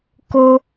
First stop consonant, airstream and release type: plain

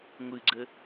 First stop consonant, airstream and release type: click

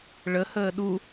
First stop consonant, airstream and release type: implosive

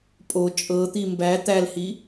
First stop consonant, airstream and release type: ejective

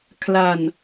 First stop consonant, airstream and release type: aspirated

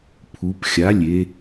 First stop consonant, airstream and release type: aspirated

